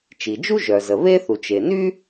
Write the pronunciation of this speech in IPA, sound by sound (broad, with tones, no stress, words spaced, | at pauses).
t͡ʃi˩d͡ʒu˥ʒœ˩zə˩ βe˥θu˩ t͡ʃe˩ny˥